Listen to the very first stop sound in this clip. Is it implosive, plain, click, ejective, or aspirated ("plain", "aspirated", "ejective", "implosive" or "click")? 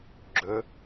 click